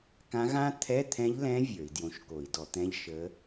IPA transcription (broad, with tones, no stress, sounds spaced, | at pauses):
k ã˧˥ ɣ ã˥ t̪ʰ ɛ˧˥˧ t̪ʰ ɛ̃˧˥ ʎ l ɛ̃˧˥ vʲ ə˞˧˩˧ i̯ d j õ˧˥ ʃ k o˧˩˧ i̯ d ɔ˧˩˧ t̪ ɛ̃˧˥˧ ʎ ʃ ə˧˥